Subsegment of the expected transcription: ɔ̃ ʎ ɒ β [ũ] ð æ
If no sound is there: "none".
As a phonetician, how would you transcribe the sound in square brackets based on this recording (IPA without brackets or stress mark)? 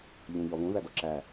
ũ